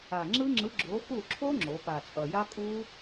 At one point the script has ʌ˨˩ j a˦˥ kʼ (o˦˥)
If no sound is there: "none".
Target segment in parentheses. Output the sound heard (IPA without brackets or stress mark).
u˦˥